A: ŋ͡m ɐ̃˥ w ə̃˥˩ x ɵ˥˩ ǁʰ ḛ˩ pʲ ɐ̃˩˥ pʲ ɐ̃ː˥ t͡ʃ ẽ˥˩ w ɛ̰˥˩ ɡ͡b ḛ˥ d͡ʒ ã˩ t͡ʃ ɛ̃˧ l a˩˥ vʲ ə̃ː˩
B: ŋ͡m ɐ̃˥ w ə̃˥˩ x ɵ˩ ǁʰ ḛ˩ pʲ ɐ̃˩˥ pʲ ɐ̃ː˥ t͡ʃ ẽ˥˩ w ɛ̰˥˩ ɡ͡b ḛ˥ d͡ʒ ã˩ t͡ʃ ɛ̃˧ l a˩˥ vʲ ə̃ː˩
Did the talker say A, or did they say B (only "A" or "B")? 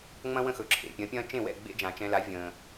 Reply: B